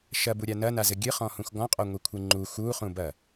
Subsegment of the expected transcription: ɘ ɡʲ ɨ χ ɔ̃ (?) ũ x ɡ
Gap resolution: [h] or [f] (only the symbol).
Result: h